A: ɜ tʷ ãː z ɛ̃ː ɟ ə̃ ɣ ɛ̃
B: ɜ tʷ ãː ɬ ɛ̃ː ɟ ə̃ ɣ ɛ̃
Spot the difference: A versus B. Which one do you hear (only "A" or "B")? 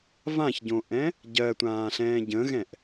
B